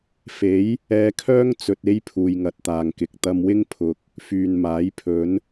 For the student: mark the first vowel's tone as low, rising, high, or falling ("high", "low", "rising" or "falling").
rising